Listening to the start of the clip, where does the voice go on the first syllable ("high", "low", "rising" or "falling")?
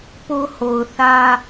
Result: high